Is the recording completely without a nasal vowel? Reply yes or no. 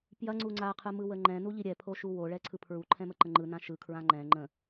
no